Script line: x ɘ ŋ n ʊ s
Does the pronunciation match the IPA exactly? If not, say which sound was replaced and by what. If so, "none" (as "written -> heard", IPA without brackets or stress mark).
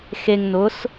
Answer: ɘ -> e